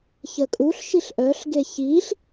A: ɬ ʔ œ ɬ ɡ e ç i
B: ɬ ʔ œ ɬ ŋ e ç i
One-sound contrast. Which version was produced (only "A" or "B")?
A